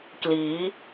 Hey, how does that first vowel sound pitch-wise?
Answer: rising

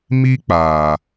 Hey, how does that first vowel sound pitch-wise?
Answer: high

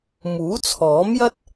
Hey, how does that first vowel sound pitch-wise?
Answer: rising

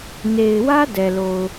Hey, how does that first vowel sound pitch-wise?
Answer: low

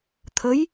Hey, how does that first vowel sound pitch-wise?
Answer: rising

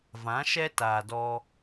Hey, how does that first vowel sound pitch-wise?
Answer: rising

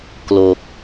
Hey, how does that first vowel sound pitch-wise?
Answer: low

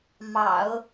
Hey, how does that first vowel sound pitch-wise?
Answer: low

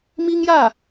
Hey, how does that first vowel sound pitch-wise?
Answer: high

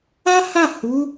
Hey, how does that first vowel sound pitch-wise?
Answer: high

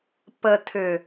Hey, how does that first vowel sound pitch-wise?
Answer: low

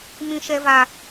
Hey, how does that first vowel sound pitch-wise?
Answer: high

